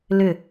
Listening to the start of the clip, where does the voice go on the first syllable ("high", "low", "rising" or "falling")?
falling